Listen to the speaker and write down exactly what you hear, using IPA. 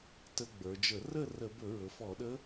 t ə˧ ɡ͡b ə˞˩˧ d͡ʒ ə˧˩˧ r ə˥˨ r ə˧˩˧ b ɵ˧˩˧ ɹ ɵ˩˧ f ɔ˧˩˧ ɗ ə˧˥

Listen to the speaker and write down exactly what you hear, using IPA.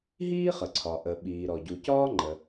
ɦ iː˥ χ ə˩ ǀʰ ɒ˩ ʔ ə˩ ɓ iː˩ ɾ ɔ˩ ɟ u˩ c ɒː˥ ŋ͡ǃ ə˩

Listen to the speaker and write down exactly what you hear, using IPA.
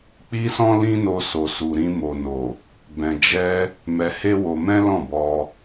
k͡p i˦ s ɔ̃˦ l ĩ˦ n o˧ s o˨ s u˨ ɾ ĩ˧ m o˨ n o˨ | b ɛ̃˨ d͡ʒ ɛ˧ | m ɛ˧ h e˦ w o˧ m ɛ̃˦ l ɔ̃˦˨ b ɔ˧

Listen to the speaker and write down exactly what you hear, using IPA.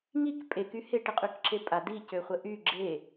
ŋ i k pʼ e k y h e ʈ ɪ qʼ y k ǁ e pʼ a d i c ø χʷ ə ʔ y ɡ͡ǁ e

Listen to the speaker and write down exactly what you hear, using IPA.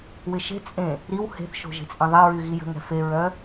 w ɪ ʃ e̤ t͡sʼ ẽ | ɾ i w h e̤ θ ʃ o̤ ʒ e̤ t͡sʼ ẽ ðˤ i ɹ y ɣ i j ə̤ ŋ ɛ̤ f e ɹ œ

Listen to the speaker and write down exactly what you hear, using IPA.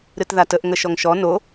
ɾ ɨ t ð a t ə ʔ ŋ ə ʃ ɔ ŋ ʃ ɔ n o

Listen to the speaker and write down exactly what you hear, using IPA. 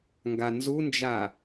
ŋ ɡ a n z u n d͡ʒ a

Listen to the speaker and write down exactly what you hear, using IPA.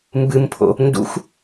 m b ɨ m pʰ o̰ | n d ṵ x

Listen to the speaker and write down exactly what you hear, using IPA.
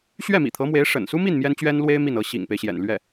ɕ ɥ ɛ˥˩ m ḭ˨˩ t̪ʰ ɤ˧˥ m w e˧˥ ɪ̯ ʂ ə̰˨˩ n s u˥ m i˥˩ n m j ɛ˥ n t͡ɕ ɥ ɛ˥ n l w e˥ ɪ̯ m i˥˩ n ɤ˧˥ ɕ ḭ˨˩ ŋ p e˦ ɪ̯ ɕ j ɛ̰˨˩ n l ɥ ɛ˥˩

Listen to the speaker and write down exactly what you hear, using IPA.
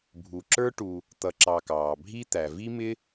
bʱ u˨ ǁ ə˞˥ ʈ u˨ | t̪ ʌ˨ ǁ ɑ˨ k ɑː˩ bʱ i˥ t̪ æ˩ v i˥ m ɪ˥

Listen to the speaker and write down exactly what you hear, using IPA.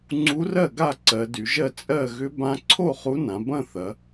ŋ͡ǀ u˧˥ r ɜ˥˩ ɡ a˥˩ ǀ ɜ˩˧ d y˩˧ ʒ ɜ˥˩ t͡sʼ ɜ˥˩ ɣ ʏ˧˥ b ã˧˥ ǀʰ o˥˩ χ u˧˥ n ã˩˧ b ɐ̃˥˩ θ ɐ˩˧

